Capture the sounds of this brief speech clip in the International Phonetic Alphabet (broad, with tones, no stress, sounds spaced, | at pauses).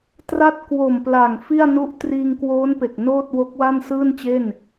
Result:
t r a˥˩ t̚ k w o˨˩ m p l a˨˩ ŋ f i˥˩ a̯ n u˥˩ ʔ t r iː˧ ŋ k w oː˦˥ n p e˨˩ k̚ n oː˥˩ t̚ w o˦˥ k̚ w a˥˩ n s ɯː˥˩ n t͡ɕ e˥˩ n